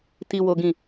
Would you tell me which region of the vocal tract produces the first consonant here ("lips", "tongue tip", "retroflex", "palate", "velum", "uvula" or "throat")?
tongue tip